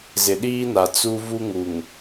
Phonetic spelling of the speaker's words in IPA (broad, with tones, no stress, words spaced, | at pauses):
zɪ˨ɗiː˦na˨ t͡su˦vu˦ŋu˨ŋ